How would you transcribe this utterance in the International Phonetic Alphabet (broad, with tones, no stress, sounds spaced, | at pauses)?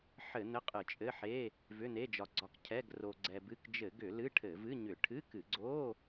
ħ ɘ˧˩˧ n̪ ɘ˧˥˧ qʼ ɨ˧˩˧ t͡ʃʼ ɘ˧˥˧ ħ e˧˥˧ | v ʏ˧˥˧ n̪ e˧˥˧ d͡ʒ ɒ˧ ɡ͡ǀ ɒ˧ k cʰ ɛ˧˥˧ ɡ r o˧ ɡ͡ǀ ɛ˧ b ɨ˧˥˧ k d͡ʒ ɘ˧˩˧ ɡ ʏ˧˩˧ l ɨ˧˥˧ ʈʰ ɘ˧˩˧ v ɨ˧˥˧ ɲ ʏ˧˩˧ ʈʰ ɨ˧˥˧ k ɨ˧˩˧ ɡ͡ǀ o˧˥˧